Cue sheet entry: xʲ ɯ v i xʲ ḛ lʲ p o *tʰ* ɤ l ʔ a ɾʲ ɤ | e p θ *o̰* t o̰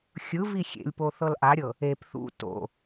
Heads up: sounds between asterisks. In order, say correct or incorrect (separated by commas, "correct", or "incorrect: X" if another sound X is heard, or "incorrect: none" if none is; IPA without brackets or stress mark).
incorrect: θ, incorrect: ṵ